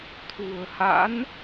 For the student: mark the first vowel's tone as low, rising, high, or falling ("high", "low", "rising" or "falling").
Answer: low